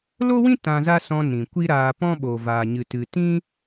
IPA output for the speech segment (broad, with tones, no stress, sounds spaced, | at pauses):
l o˦ w ĩ˦ t ã˧ z a˦ s ɔ̃˧ n ĩ˨ kʷ i˦ ɾ aː˧ p ɔ̃˦ ɓ o˨ v aː˨ ɲ ɨ˨ t ɨ˨ t ĩ˦